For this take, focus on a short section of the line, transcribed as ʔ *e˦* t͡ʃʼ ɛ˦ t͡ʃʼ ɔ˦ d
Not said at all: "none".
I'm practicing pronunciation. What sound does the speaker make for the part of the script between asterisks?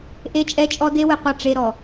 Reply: e˦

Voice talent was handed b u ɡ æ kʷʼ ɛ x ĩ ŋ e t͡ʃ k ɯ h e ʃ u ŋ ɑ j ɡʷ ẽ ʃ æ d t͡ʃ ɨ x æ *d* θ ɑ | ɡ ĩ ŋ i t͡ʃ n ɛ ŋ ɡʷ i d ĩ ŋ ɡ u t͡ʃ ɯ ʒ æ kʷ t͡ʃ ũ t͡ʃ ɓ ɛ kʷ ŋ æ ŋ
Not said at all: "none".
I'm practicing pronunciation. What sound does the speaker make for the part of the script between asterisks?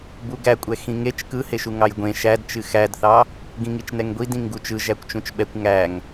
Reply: d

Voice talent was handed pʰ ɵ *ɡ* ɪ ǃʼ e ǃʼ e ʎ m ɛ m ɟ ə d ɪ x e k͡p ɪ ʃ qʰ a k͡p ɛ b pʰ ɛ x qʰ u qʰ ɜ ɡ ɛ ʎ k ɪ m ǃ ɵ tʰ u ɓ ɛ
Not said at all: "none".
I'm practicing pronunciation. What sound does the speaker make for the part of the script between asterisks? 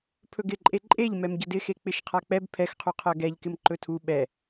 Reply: ɡ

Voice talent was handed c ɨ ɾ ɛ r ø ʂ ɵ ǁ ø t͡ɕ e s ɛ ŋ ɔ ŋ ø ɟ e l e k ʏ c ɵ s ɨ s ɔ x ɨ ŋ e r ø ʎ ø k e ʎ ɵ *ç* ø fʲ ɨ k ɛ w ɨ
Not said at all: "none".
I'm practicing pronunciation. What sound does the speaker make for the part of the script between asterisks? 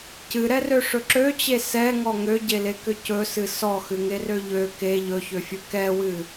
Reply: ç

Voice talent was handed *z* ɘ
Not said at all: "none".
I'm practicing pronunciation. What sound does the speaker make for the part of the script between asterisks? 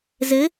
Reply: z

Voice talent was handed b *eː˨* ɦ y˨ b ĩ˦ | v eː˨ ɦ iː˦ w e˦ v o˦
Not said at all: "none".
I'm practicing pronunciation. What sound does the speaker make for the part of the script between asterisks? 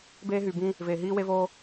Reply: eː˦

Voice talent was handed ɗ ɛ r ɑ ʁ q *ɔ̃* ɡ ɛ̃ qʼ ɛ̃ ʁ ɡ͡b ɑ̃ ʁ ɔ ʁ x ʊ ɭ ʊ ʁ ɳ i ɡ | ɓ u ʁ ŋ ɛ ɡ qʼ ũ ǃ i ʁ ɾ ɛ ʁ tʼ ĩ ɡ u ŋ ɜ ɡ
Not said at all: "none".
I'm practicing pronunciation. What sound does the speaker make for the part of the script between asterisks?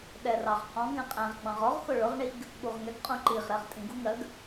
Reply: ɔ̃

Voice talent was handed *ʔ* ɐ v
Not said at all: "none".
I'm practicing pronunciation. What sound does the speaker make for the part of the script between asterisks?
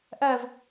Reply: ʔ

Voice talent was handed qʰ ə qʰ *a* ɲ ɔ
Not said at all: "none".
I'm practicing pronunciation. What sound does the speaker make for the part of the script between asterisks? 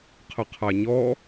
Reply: a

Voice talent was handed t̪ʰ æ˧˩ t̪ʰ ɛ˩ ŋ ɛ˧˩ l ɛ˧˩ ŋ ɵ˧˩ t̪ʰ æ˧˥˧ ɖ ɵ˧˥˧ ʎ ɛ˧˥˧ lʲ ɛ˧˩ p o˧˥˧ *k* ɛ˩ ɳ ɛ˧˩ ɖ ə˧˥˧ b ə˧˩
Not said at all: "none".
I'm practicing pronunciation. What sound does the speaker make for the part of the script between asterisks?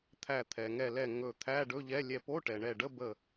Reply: ʈ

